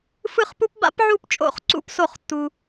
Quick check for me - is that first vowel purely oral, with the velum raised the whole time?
yes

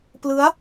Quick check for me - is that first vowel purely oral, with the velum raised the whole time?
yes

